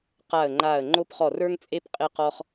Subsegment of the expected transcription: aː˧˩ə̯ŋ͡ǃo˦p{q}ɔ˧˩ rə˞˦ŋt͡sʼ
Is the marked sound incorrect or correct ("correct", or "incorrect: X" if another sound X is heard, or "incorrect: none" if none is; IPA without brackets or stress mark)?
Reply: incorrect: χ